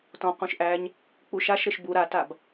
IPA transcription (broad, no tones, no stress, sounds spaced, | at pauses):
t ɔ̃ q ũ ʃ ʔ æ ɲ | k͡p u ʃ a ʃ ɾ ɘ ʃ b u ɾ a t a b